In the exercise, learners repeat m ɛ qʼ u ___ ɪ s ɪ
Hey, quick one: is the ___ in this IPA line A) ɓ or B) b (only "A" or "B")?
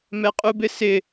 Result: B